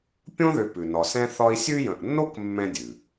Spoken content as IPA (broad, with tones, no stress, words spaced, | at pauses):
pʲõ˥ðʏ˨pʉ˩ nɒ˨sɛ̃˥θɒ˥i̯ sʲʉ˦jə̃˨ʔnːo˥k mːɛ̃˦dʲʉ˩